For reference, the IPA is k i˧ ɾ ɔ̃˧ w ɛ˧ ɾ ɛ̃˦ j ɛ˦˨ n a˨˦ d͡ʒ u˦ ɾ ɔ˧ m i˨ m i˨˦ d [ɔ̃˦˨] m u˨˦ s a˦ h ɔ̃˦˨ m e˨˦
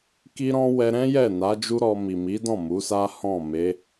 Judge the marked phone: correct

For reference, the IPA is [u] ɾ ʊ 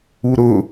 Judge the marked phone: correct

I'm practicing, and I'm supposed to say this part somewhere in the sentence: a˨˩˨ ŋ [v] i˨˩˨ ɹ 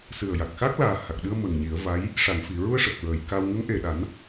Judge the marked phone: incorrect: f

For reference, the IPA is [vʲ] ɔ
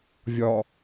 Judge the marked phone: correct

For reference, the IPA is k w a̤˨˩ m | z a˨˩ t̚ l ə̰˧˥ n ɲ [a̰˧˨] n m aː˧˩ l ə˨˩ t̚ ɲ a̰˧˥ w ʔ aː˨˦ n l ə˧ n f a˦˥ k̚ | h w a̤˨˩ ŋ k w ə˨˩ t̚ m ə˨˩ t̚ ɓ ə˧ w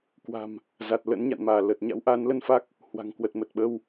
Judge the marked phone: correct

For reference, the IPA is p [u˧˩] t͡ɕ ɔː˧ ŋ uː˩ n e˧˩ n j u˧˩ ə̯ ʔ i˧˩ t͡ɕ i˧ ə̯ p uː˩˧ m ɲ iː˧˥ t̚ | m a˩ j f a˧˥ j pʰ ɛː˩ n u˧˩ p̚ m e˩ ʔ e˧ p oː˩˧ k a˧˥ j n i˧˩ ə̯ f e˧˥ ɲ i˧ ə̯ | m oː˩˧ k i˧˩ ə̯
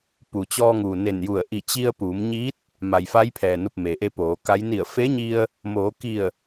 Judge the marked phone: incorrect: u˩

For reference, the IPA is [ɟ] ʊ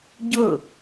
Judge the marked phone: correct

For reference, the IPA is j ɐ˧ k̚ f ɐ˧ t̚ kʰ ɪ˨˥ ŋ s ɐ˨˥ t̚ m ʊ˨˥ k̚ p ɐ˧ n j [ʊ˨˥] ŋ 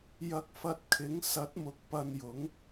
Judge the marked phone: correct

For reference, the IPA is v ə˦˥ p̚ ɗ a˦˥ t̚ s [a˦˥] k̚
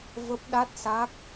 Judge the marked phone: correct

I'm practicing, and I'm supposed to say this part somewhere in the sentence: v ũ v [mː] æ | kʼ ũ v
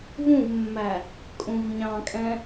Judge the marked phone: correct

